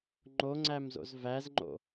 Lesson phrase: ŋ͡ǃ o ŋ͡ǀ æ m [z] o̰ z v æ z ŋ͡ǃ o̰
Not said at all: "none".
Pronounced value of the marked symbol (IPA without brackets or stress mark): z